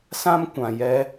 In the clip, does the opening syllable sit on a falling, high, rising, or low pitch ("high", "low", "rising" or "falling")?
high